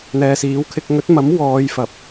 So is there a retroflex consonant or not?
no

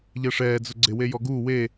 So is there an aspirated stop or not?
no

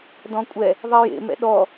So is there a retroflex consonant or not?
no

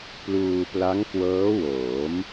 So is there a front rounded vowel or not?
no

